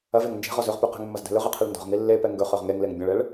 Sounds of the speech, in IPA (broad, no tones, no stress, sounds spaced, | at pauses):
ɐ v e ŋ n d͡ʒ e̤ ʁ ɔ z ɵ ʁ p ʉ q ɛ̤ ŋ mː ɐ z d ɛ̤ l ɵ ʁ ɛ qʰ e ɭ n d ɔ̤ ʁ ŋ i lː e p ɛ ŋ ɡ ɵ χ œ ʁ ŋ e ŋ l e ŋ bʲ ə̃ ɭ ɛ ɭ